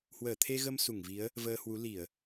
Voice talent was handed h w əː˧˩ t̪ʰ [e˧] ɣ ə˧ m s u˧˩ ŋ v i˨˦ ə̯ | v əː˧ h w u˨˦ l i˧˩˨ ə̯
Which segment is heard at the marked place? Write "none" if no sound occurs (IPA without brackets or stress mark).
e˧